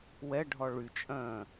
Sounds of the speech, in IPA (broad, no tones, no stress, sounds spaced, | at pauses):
w ɛ ɖʱ ɔ ɭ y t͡ʃʼ œ̃ː